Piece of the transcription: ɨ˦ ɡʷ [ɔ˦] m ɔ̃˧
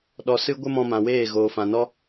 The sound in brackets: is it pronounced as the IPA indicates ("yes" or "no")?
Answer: no